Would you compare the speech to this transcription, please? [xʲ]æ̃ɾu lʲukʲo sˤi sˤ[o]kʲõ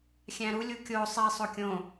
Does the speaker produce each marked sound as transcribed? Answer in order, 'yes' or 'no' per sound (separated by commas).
yes, yes